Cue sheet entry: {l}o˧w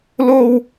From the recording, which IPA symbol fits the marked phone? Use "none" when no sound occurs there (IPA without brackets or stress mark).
l